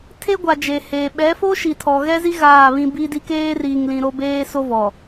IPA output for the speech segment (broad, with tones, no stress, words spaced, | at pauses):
tʰe˦ɡʷa˨ d͡ʒe˨heː˨ ɓɛ˨˦fo˦ʃi˨ tʰɔ˨ɣɛ˦zi˦ ɣaː˦˨βĩ˦ bi˦di˦ keː˦riː˨ŋlĩ˨ ɾo˦beː˦so˦vɔ˨